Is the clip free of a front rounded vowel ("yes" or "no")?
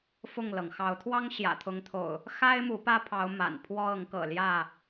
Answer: yes